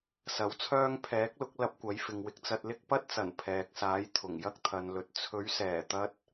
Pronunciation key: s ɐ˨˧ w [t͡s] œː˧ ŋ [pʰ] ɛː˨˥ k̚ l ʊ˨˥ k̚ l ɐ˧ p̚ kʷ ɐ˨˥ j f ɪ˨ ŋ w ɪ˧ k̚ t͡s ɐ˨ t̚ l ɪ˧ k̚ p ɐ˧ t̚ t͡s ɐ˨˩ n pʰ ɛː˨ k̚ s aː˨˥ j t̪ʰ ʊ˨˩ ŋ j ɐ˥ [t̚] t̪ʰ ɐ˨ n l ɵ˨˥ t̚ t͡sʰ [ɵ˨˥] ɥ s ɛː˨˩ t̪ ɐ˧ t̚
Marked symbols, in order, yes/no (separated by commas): no, yes, no, yes